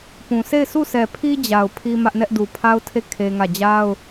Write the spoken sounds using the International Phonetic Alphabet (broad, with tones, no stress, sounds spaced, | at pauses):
p ũ˨ sʰ e˦˨ ɪ̯ s u˦˨ sʰ ɛ˨ pʰ i˦ d͡ʑ a˨ ʊ̯ pʰ i˦ m ä˦ ʔ n ɛ˦ ʔ d u˨ pʰ a˦ ʊ̯ tʰ e˦˨ kʰ e˦ ŋ ä˦˨ d͡ʑ a˦ ʊ̯